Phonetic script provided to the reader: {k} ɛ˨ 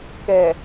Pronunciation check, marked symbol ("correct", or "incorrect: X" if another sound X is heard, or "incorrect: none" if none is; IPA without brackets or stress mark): correct